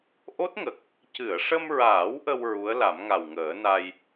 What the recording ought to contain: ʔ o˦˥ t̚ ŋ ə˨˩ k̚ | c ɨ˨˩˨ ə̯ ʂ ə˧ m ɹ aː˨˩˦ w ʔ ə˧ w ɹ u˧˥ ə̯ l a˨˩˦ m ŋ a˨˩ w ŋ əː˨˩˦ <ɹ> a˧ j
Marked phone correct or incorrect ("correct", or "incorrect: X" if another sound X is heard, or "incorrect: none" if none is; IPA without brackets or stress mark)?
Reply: incorrect: n